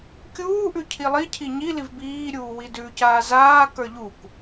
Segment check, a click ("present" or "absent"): absent